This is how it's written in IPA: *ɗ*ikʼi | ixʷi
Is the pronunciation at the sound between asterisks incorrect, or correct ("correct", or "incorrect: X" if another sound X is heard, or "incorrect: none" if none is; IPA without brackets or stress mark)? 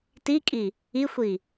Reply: incorrect: t